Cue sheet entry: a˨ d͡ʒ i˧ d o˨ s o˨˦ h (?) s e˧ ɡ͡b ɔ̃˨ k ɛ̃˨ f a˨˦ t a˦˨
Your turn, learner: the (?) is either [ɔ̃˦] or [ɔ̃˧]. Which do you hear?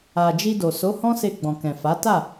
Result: ɔ̃˦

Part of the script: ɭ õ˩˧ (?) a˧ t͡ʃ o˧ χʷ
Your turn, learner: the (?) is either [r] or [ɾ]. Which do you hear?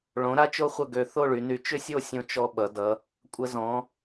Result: ɾ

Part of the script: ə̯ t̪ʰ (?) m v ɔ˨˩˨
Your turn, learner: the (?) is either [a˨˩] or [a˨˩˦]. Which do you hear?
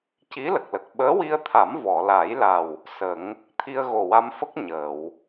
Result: a˨˩˦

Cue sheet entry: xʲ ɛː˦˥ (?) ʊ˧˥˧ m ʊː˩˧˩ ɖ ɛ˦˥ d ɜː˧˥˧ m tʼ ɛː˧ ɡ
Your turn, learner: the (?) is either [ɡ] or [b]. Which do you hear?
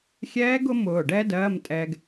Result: ɡ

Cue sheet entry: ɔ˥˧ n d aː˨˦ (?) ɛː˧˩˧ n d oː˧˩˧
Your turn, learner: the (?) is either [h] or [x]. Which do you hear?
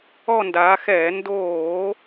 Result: x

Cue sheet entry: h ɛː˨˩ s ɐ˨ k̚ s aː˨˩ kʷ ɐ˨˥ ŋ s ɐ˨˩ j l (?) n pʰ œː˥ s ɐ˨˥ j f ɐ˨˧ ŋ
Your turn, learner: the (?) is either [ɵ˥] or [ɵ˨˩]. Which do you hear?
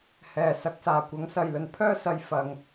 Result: ɵ˨˩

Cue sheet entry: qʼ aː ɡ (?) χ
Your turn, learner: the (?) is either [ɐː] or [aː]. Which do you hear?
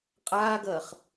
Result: ɐː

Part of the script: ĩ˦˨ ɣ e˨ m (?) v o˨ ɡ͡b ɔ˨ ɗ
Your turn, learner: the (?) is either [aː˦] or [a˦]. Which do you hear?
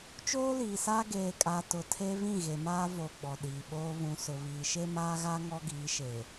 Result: aː˦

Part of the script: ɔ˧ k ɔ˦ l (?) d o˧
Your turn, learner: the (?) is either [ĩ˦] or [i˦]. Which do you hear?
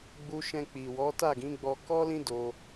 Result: ĩ˦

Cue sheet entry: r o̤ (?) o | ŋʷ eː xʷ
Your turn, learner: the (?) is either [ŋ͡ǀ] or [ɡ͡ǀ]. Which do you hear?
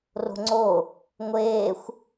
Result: ŋ͡ǀ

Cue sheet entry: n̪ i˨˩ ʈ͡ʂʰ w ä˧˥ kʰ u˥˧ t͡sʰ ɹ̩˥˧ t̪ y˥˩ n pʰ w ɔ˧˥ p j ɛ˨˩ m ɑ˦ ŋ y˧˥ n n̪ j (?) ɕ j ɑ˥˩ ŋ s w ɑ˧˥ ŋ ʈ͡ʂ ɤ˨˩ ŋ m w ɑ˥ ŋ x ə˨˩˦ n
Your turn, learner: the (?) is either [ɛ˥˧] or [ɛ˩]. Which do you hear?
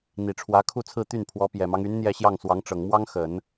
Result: ɛ˥˧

